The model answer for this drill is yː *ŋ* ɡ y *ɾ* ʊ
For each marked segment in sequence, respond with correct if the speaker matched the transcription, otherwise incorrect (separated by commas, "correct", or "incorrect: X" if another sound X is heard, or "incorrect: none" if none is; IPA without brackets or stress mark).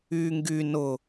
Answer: correct, incorrect: n